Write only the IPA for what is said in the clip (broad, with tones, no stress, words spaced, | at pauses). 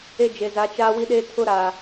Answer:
e˦d͡ʒe˨za˨˦ t͡ʃaː˦wi˦ɗeː˦tʰʊ˦ ɾaː˨